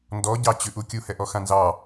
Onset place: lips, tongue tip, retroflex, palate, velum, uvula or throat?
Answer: tongue tip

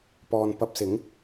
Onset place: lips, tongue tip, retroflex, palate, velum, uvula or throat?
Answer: lips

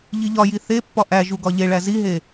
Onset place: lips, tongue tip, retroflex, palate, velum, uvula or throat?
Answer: palate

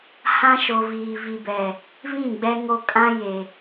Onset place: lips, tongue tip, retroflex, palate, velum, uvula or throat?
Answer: throat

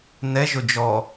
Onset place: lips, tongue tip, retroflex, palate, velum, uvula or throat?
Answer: tongue tip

